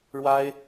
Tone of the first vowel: high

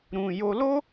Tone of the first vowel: high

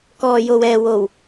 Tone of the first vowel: low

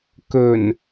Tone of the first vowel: low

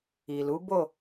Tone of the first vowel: low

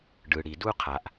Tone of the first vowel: low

